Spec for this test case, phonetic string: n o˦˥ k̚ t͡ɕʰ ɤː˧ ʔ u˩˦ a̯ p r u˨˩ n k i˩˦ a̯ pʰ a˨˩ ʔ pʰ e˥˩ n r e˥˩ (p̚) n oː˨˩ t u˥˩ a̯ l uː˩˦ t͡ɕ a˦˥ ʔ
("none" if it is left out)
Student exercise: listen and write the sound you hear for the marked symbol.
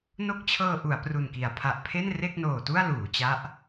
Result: k̚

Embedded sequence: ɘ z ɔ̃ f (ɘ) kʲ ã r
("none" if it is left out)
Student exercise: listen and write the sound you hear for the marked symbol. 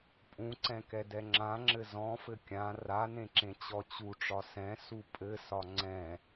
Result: ɘ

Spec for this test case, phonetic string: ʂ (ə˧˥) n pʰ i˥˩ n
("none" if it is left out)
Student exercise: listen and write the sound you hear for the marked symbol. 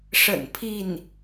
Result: ə̰˨˩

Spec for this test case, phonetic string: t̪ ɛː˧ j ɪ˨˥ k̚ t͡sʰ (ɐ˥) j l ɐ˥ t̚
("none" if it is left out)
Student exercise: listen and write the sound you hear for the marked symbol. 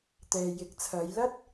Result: ɐ˨˧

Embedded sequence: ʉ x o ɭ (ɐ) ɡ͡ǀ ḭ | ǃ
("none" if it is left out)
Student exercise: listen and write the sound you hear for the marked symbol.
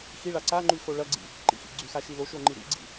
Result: ɐ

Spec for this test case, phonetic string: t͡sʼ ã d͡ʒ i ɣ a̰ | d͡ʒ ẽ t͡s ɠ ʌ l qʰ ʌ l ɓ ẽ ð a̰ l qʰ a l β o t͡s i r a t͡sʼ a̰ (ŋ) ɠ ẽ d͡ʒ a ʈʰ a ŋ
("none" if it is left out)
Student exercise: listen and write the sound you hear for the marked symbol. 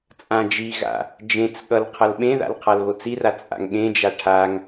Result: ŋ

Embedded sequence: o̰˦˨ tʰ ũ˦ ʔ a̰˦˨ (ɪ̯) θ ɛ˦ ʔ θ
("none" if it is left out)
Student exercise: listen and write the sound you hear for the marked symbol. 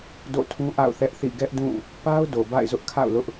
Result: ʊ̯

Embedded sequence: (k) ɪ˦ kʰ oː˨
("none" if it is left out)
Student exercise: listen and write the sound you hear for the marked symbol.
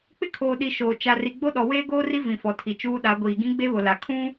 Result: k͡p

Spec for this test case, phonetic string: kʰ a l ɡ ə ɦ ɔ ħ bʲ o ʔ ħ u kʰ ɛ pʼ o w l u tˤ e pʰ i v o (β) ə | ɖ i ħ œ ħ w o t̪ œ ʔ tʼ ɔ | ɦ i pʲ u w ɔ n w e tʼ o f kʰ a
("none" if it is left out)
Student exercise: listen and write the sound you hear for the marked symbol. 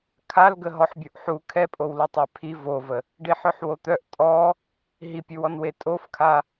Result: v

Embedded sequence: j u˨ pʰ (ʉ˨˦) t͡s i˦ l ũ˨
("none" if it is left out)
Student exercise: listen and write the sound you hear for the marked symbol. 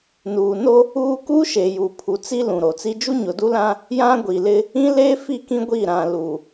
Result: u˨˦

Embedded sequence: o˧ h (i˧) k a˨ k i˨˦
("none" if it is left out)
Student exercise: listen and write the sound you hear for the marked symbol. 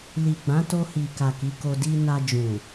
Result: i˨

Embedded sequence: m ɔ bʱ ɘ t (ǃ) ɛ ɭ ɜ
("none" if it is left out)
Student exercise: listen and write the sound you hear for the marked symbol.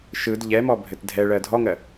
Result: dʱ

